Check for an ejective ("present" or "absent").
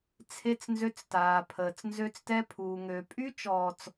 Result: present